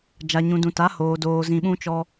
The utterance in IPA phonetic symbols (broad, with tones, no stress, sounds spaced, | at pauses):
d͡ʒ a˨ ɲ ũ˨ d ũ˨ t a˨˦ h oː˨ d oː˧ z ĩ˧ ɓ ũ˦ t͡ʃ ɔ˦